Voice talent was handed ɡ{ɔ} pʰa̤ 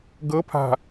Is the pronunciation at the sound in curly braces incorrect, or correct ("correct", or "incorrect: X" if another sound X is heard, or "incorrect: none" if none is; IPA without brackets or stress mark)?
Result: incorrect: ɤ